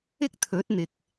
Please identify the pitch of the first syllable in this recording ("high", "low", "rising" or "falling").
high